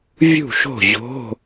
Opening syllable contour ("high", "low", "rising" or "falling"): falling